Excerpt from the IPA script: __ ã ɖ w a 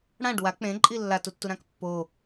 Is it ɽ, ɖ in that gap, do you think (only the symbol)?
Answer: ɽ